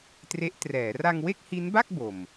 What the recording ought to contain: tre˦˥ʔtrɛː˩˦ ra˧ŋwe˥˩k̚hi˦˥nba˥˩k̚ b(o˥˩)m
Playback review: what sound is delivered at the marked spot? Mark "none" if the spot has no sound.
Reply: o˨˩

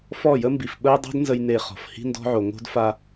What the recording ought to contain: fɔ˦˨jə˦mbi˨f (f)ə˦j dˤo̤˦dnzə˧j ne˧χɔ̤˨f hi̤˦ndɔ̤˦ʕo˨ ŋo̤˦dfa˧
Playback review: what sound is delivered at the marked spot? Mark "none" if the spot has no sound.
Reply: ɓ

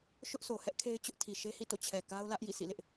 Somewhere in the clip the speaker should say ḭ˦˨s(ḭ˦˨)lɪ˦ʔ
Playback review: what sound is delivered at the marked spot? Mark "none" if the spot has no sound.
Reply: ḭ˦˨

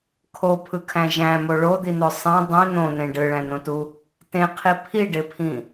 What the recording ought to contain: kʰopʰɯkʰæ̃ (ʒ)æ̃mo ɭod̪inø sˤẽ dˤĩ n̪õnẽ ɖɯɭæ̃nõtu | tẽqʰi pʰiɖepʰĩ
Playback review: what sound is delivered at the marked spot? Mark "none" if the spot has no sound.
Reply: ʒ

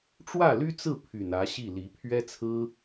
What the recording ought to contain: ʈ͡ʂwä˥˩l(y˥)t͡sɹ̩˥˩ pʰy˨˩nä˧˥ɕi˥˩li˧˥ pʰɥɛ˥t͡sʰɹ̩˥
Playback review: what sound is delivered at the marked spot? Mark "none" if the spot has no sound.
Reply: y˥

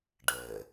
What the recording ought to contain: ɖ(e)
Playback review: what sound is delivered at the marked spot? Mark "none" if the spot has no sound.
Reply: ɛ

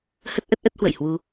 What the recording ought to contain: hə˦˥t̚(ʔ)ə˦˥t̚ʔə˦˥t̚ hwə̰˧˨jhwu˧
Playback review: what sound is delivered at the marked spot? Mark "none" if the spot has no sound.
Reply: ʔ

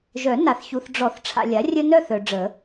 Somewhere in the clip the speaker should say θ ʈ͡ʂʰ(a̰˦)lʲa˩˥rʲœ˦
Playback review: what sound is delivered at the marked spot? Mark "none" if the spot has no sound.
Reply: a̰˨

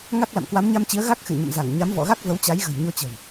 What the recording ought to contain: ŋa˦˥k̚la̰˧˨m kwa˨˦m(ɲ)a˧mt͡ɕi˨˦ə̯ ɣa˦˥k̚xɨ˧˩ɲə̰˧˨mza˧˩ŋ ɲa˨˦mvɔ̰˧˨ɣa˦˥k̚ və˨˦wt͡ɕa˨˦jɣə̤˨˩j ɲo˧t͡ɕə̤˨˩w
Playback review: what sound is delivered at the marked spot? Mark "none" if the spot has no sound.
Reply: ɲ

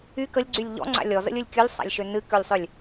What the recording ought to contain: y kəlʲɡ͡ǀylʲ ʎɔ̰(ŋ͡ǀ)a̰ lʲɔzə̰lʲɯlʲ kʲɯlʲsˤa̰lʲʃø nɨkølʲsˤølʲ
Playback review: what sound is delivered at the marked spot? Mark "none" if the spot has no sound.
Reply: ŋ͡ǀ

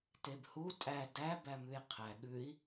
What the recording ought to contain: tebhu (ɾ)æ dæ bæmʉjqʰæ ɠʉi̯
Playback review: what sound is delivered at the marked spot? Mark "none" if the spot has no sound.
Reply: tʼ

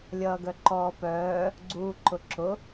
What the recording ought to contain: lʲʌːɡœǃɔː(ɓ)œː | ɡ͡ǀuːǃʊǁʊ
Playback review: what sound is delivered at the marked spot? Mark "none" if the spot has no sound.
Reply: p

